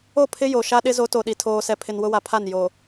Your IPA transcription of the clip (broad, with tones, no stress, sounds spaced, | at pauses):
o˦˨ pʰ ɪ˦ j o˨ ʃ a˦ ɗ ɪ˦ z o˨˦ t o˨ ɗ i˨ tʰ oː˨ s ɛ˨ pʰ ɪ˨ n w ʊ˦ w a˨ pʰ a˦˨ n j o˨